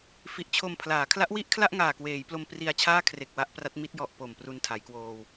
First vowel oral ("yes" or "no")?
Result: yes